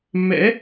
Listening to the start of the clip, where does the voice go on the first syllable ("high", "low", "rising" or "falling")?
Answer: rising